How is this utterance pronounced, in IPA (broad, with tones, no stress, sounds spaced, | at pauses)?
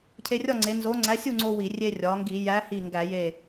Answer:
cʰ e˧ rʲ ɒ˥˨ ŋ͡ǀ e˩˧ n z o˨˥ ŋ͡ǀ æ˨˥ sʲ u˥˨ ŋ͡ǀ o˧ w i˧˩˧ rʲ e˧ rʲ ɒ˩˧ ŋ ɡ i˧˩˧ j æ˨˥ h i˧˩ ŋ ɡ æ˧˩˧ j e˧˩